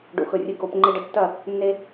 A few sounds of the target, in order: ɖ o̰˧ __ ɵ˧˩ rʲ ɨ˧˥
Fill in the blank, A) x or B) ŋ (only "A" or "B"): A